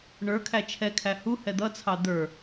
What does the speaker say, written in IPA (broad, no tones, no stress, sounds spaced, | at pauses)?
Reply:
ɳ ə˞ kʰ æ t͡ʃʰ ɛ kʰ æ h u h ɛ d̪ ʌ t͡sʰ ɑ d̪ ə˞